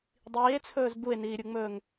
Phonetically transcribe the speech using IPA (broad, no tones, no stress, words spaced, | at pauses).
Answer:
dˤiːe̯t͡sʰɵːz bue̯niːɾʲuŋ͡mɵːŋ